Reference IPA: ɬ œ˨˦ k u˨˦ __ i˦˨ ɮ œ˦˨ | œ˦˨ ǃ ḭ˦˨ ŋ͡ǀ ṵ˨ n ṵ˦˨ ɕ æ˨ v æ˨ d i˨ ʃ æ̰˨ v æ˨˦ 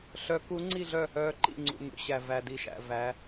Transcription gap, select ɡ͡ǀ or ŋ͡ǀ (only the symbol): ŋ͡ǀ